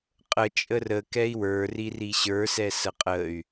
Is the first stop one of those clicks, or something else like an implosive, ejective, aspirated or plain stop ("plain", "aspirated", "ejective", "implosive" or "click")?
ejective